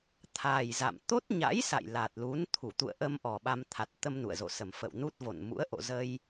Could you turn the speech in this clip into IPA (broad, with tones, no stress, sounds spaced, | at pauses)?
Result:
t̪ʰ a˨˩ j z a̰˧˨ m t̪ o˦˥ t̚ ɲ a̰˧˥ j s a̰˧˨ j l a˨˩ t̚ l u˨˦ n t̪ʰ u˧˩ t̪ ṵ˧˨ ə̯ ʔ ə˧ m ʔ ɔ˨˩ ɓ a˧ m t̪ʰ a˨˩ t̚ t̪ ə˧ m n ṵ˧˨ ə̯ z o̰˧˨ s ə˨˩ m f ə̰˧˨ w n u˦˥ t̚ v o̰˧˨ n m ṵ˧˥ ə̯ ʔ o̰˧˨ z ə˧ j